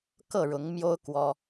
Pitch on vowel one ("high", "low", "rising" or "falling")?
falling